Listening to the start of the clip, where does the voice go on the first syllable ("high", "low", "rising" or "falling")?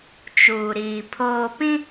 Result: low